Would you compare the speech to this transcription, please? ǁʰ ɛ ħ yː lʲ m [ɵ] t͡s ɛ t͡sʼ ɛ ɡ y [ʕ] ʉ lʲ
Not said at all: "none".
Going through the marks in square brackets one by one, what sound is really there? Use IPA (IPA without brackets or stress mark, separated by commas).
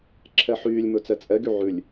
ɵ, ʕ